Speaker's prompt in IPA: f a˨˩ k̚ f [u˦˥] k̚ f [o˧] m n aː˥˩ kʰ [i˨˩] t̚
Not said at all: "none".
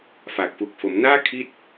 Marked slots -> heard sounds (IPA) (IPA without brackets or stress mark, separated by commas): u˨˩, o˩˦, i˦˥